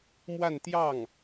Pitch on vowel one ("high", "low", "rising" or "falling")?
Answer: falling